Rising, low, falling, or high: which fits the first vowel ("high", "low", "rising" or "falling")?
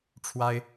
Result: high